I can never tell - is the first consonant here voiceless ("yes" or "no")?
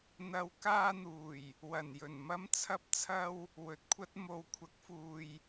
no